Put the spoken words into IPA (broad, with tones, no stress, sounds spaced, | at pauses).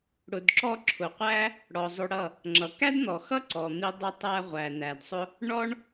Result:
ɽ ʊ˨ d ǁ ɔ˧ ǁʰ ʊ˨ qʷ æ˦ | ɽ ɔ˨ zˤ ʊ˧ ɽ ʌ˦˨ | ŋ͡ǁ ʌ˨ k æ˦ d n̪ ɔ˨ x ʌ˦ ǀ ɔ˨ n̪ i˧ dˤ ʊ˧ tˤ æ˧ ʁʷ æ˨ n æ˨ d sˤ ʊ˦ | ɳ ɔ˦ ɳ